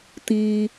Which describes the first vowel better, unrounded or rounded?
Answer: unrounded